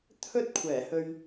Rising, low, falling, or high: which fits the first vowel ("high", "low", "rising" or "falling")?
high